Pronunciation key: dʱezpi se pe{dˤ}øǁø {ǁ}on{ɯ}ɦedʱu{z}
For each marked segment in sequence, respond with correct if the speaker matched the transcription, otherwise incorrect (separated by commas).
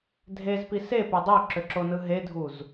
correct, correct, correct, correct